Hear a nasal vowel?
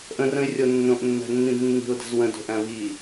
yes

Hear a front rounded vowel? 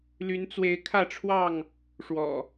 yes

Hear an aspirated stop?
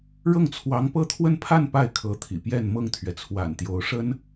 yes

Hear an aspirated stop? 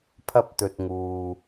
yes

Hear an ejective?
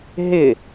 no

